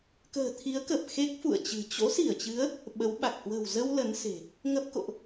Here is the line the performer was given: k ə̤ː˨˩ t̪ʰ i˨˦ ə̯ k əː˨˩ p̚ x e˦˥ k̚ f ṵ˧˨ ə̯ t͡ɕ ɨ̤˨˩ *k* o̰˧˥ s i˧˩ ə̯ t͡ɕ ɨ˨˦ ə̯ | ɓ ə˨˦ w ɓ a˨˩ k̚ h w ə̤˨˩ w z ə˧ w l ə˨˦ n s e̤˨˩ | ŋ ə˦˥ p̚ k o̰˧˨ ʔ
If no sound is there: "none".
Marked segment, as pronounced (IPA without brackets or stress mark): t͡ɕ